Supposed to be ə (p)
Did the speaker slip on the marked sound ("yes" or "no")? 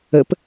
no